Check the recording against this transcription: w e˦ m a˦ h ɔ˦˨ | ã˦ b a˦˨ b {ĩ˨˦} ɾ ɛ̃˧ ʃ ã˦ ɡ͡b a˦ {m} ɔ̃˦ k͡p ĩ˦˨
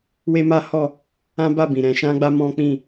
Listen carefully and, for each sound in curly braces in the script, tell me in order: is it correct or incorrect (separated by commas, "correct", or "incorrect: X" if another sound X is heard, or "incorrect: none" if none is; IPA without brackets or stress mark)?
incorrect: ĩ˨, correct